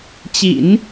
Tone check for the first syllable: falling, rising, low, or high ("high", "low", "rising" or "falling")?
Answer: low